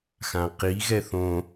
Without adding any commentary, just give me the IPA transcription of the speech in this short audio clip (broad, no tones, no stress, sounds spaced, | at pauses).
x ã q i ɣ ɛ θ õ